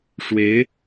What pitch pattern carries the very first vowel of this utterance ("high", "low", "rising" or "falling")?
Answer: rising